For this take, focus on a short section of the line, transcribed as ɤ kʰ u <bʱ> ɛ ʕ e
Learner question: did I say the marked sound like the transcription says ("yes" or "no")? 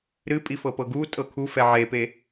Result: no